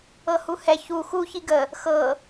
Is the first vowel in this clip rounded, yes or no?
no